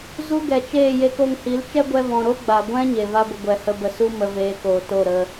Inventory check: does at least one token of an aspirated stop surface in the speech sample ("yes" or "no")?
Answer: no